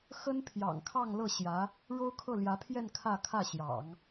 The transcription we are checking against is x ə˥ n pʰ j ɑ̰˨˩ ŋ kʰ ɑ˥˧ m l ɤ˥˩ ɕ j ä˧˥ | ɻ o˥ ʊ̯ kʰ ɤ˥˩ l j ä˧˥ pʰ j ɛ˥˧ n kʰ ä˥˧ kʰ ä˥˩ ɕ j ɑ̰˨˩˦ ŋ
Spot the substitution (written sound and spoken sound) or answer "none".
m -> ŋ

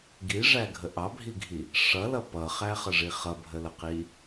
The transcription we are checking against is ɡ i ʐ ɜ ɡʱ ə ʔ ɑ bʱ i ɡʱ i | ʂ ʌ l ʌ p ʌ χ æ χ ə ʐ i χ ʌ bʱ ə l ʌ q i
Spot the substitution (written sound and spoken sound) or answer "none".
ɜ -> æ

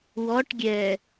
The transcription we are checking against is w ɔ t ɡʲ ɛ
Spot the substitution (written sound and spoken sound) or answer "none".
t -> ʈ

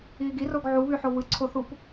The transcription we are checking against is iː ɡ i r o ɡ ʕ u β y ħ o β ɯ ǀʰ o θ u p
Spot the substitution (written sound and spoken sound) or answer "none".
none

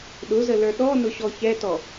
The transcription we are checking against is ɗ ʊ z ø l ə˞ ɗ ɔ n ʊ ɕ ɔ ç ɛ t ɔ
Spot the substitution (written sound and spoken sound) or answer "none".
ø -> ə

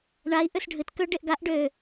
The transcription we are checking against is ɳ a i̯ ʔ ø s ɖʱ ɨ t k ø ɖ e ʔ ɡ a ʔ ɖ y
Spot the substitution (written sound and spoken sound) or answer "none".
y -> ø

